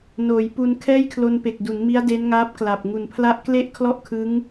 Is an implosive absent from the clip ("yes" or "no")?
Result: yes